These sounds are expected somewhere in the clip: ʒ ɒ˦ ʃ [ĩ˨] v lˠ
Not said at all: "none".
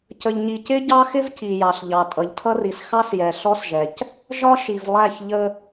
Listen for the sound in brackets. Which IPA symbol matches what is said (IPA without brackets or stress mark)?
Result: i˨